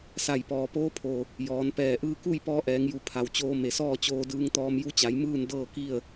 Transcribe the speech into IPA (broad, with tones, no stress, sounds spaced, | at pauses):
s a˧˩ j p ɔː˩ p oː˧˥ pʰ o˩ | j ɔː˩˧ n p ɛː˧˩ ʔ ɯː˧ k u˥˨ j p ɔː˧ ʔ ɛː˩˧ ŋ j u˧˩ pʰ a˩ w t͡ɕ oː˧ m e˩ s ɔː˥˨ t͡ɕ oː˧ d ɯː˧ ŋ t̪ ɔː˧ m j u˧˥ t͡ɕ a˩˧ j m ɯː˥˨ n d ɤː˥˨ k i˥˨ ə̯